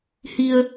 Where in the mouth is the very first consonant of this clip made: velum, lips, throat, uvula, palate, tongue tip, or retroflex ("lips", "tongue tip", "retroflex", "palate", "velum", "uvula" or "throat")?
throat